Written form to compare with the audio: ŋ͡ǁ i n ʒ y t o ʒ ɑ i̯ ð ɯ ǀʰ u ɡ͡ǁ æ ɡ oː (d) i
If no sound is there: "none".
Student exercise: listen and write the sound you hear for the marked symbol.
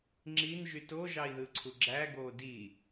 d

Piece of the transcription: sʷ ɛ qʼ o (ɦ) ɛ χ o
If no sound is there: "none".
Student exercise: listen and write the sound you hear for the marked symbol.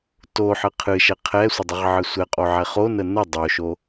ʕ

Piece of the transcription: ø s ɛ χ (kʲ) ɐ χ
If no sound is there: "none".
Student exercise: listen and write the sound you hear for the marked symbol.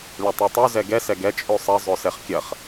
kʲ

